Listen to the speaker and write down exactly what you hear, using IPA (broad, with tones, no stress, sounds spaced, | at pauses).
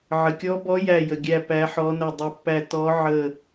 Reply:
ʕ ə˨ kʲ ɔ˧˥ b ɔ˧˥ j æ˦˨ j ə˨ ɡʲ æ˦˨ p æ˧˥ ħ ɔ˧˥ n ə˦˨ dˤ ə˧˥ pː æ˦˨ t ɔ˧˥ ʕ ə˦˨